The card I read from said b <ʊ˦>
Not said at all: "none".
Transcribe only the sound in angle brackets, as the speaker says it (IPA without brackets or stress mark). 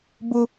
ʊ˦